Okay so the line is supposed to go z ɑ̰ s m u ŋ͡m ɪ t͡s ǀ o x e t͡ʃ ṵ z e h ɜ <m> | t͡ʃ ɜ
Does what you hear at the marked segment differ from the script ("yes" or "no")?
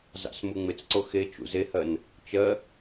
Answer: yes